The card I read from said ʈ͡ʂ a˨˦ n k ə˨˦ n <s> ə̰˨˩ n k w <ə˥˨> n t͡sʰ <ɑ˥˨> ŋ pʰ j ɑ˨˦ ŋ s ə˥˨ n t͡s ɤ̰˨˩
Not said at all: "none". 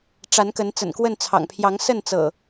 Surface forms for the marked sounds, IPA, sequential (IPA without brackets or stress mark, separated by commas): t͡s, ə˥˨, ɑ̰˨˩